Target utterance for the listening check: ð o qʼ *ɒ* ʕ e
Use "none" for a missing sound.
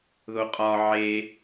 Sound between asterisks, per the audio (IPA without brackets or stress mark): ɒ